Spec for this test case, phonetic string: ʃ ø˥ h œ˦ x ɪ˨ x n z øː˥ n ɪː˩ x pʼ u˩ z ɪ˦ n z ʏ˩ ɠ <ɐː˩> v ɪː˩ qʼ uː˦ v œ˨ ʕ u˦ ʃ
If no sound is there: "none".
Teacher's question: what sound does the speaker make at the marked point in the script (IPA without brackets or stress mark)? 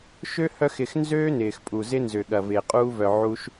ɐ˩